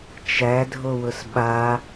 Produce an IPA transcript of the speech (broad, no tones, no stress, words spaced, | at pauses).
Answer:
t͡ʃædʱowʊs ɓa